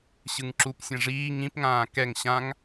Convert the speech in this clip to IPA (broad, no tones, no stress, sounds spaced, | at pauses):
ɕ ɯ ŋ ǁ u p sʲ ã ʐ iː ŋ ĩ p ŋ ãː k ɛ ŋ ɕ ã ŋ